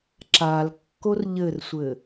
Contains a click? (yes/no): yes